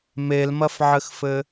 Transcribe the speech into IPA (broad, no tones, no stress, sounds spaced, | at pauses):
m e l m ɐ f ʕ ɘ x f ɘ